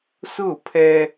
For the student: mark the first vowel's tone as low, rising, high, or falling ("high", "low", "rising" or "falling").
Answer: falling